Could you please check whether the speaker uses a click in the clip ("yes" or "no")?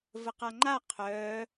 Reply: yes